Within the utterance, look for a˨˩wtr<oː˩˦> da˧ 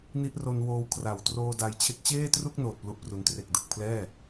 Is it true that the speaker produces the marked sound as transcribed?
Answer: no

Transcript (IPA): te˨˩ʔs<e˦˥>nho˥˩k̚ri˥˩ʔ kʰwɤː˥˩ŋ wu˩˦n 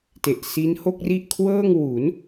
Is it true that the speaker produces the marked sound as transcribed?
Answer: no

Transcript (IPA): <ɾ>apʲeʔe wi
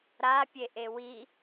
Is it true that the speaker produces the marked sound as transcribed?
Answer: yes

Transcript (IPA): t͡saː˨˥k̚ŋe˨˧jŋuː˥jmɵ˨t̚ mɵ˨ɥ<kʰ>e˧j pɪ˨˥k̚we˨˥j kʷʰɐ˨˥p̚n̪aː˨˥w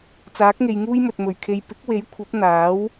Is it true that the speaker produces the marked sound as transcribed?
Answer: yes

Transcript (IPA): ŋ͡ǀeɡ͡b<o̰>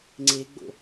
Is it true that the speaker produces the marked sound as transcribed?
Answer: yes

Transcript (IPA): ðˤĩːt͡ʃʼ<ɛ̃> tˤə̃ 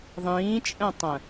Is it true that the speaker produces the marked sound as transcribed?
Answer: yes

